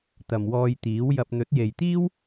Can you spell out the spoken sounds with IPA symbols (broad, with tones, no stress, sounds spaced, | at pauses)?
t̪ ɐ˨ m w ɔː˧ j t̪ iː˨˥ w j ɐ˧ p̚ n̪ ɵ˨˥ t̚ j e˨ j t̪ iː˥ w